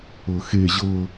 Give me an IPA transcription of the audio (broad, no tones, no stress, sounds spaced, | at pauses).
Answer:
ɤ x e ʑ ɤ